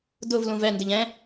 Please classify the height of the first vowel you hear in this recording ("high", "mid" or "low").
high